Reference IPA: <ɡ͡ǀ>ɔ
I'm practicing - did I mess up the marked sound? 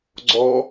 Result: no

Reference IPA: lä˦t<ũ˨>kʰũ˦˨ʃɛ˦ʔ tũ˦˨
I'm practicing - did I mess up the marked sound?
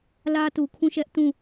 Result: yes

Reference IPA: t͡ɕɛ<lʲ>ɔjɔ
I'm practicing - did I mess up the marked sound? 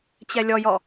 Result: no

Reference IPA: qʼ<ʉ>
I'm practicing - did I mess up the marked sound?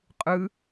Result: yes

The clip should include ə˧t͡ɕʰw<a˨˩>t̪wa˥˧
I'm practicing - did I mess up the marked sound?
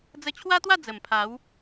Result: yes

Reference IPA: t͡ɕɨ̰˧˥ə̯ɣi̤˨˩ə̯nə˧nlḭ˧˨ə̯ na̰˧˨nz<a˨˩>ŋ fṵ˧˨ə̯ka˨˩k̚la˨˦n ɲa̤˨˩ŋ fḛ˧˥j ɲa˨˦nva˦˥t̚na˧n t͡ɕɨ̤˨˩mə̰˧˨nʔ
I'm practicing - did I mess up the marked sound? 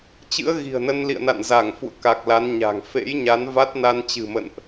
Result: yes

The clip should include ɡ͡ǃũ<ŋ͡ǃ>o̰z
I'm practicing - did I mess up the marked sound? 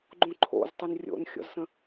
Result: yes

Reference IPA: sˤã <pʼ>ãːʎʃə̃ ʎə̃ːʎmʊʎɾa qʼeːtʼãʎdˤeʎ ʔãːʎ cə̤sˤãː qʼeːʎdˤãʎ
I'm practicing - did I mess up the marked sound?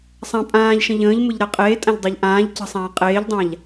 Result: no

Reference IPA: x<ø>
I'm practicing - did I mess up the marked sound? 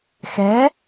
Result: yes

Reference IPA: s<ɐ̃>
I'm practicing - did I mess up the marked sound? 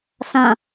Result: no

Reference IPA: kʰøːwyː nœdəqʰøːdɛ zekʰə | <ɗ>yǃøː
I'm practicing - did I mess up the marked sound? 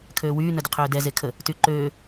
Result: yes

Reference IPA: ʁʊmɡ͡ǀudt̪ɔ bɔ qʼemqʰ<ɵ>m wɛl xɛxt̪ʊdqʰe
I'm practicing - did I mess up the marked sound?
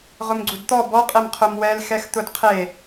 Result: yes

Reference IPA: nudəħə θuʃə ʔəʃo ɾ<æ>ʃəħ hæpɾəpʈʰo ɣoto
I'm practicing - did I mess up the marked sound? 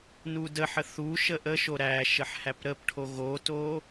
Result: no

